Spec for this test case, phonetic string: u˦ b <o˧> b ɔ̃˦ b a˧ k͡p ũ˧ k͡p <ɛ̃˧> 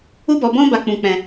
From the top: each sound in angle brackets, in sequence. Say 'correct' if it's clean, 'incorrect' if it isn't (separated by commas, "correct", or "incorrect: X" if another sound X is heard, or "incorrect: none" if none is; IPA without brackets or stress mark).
incorrect: ɔ˧, correct